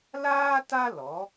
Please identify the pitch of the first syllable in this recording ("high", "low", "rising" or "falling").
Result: high